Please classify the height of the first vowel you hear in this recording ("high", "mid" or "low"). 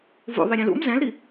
high